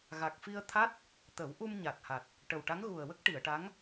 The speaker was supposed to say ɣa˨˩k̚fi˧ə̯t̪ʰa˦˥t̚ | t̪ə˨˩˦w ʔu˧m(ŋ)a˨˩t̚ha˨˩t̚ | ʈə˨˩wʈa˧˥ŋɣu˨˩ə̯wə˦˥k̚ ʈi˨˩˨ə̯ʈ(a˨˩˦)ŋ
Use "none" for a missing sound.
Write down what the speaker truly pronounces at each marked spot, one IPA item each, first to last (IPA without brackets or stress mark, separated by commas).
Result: ɲ, a˧˥